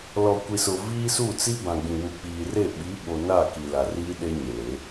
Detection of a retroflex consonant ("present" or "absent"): absent